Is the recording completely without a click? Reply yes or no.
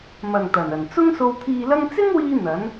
yes